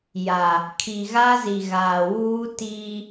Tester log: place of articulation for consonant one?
palatal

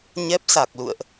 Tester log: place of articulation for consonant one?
palatal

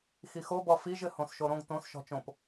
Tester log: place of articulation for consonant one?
velar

